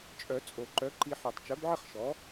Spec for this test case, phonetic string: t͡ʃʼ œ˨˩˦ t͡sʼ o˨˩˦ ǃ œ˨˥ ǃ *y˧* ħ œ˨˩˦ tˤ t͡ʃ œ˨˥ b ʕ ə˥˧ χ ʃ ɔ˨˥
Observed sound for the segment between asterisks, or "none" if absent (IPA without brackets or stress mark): i˧